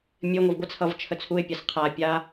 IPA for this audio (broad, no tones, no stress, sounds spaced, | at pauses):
mʲ ɘ ŋʷ ʌ v ɡʷ ɘ t͡sʰ ʌ v t͡ʃʰ ə t͡sʰ u ɪ̯ pʲ a s qʰ a pʲ a